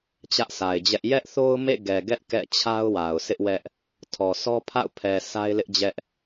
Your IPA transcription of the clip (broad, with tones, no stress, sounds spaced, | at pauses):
t͡ɕ ä˦ ʔ sʰ a˨ ɪ̯ d͡ʑ ɛ˦ ʔ j ɛ˦ ʔ θ o˦ ʊ̯ m ḛ˦˨ ɡ ɛ˨ ɡ ɛ˦ ʔ k ɛ̰˦˨ t͡ɕʰ a˦ ʊ̯ w a˨ ʊ̯ s ɪ˦ ʔ w ɛ˦ ʔ | tʰ ɔ˨ sʰ ɔ˦ pʰ a̰˦˨ ʊ̯ pʰ ɛ˨ s a˦ ɪ̯ l ɪ˦ ʔ d͡ʑ ɛ˦ ʔ